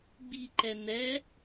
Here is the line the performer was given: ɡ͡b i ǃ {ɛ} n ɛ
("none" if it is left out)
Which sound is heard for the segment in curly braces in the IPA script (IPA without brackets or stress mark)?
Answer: ɛ